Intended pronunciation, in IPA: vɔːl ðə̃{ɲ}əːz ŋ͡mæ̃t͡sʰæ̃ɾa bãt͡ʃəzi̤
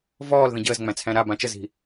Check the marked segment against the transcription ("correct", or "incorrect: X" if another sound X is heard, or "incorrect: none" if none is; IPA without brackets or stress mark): incorrect: ɟ